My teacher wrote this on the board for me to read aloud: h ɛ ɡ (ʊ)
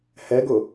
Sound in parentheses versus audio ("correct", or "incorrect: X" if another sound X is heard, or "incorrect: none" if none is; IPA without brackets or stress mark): correct